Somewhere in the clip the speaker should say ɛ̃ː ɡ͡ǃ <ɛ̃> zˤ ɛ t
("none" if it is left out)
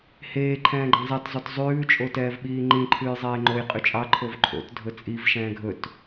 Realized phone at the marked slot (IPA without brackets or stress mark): ɛ̃